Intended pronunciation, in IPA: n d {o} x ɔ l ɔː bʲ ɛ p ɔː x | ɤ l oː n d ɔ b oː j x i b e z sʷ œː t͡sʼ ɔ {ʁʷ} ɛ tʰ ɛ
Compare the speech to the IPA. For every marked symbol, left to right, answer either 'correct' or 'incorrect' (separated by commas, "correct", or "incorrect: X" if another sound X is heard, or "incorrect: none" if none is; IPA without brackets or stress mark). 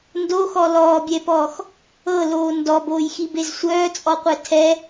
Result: correct, incorrect: qʷ